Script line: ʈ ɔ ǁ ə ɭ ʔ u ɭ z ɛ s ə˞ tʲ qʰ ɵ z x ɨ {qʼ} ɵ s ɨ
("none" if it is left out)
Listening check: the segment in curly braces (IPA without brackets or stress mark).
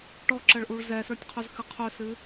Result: qʰ